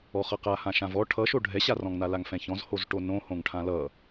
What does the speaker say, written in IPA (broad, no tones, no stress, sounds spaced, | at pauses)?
ɔ χ ʌ q a h ã ʃ ã v ɔ ʈʰ ʌ ʃ o ɖʱ ɛ ɕ a r ɔ̃ ŋ n a l a ŋ f ɛ̃ ç ɔ̃ z h o z ʈ o n õ h õ ŋ ʈʰ ã l ʌ